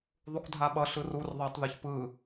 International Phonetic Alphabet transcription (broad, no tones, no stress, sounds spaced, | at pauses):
ðˤ u k dʱ a ɓ ʌ ɬ ɯ r u r ðˤ a tˤ ð ɯ ç p ɯ